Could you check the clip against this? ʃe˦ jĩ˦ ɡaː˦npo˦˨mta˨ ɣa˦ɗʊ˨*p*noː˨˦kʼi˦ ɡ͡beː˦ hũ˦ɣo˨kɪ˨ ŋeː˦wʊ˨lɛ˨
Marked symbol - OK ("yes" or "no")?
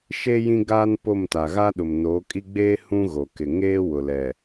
no